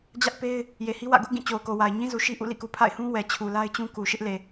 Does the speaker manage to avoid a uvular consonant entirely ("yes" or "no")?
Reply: yes